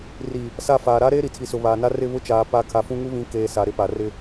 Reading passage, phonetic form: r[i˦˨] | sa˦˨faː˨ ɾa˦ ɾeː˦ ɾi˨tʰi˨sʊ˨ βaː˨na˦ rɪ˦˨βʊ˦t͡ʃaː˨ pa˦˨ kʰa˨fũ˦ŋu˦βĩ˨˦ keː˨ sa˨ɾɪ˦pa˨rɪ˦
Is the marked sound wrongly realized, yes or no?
yes